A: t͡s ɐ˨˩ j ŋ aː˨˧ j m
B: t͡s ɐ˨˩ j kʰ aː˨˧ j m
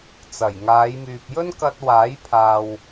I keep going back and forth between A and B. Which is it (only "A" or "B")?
A